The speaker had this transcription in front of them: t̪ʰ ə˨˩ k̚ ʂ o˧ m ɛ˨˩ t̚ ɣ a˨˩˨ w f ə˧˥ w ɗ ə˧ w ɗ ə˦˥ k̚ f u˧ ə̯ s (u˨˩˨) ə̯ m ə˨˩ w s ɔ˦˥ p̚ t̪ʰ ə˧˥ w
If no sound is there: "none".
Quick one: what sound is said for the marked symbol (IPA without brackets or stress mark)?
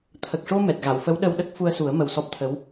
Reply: u˨˩˦